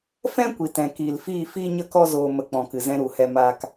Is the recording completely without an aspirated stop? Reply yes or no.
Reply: yes